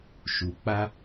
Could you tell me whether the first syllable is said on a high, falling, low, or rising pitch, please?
low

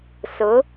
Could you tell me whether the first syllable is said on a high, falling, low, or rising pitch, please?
rising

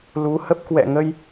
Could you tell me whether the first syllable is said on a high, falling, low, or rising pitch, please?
rising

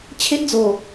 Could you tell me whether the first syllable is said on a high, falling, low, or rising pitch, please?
high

